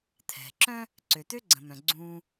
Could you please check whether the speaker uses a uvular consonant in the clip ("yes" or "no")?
no